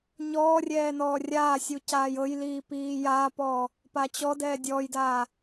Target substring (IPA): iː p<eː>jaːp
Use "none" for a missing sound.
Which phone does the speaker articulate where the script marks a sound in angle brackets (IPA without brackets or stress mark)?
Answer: iː